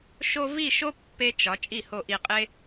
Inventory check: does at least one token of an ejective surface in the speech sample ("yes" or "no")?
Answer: yes